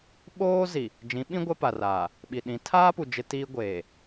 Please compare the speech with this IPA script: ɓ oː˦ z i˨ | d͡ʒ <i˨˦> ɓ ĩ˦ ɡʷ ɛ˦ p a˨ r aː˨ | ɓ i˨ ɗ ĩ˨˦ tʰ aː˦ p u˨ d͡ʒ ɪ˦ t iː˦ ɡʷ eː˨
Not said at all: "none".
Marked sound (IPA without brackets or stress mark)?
ĩ˨˦